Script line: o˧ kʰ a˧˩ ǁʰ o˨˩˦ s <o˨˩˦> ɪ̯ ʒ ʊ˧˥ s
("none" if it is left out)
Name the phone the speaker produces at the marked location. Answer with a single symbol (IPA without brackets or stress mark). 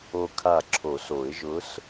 o˨˩˦